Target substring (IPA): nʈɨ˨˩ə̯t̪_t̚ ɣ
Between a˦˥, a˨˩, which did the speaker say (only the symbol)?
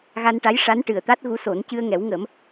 a˦˥